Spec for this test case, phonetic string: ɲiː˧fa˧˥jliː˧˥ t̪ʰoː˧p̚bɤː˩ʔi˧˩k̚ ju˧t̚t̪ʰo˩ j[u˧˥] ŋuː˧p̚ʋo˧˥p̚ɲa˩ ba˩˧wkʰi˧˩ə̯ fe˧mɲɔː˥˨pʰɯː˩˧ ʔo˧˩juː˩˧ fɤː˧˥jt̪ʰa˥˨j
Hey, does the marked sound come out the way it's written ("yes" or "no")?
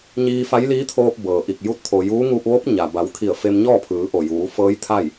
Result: no